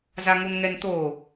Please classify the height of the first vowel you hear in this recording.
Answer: low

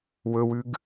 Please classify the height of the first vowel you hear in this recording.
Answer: mid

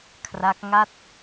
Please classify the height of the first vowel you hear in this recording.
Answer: low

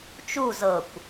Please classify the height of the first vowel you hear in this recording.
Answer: high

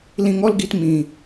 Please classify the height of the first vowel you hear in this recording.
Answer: high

